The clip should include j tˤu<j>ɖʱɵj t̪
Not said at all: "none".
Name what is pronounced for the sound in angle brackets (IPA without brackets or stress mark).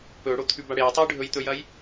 j